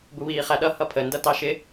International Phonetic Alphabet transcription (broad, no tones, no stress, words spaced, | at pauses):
buβiːχæɗʌ hʌpʰə ndʌtɑʃɪ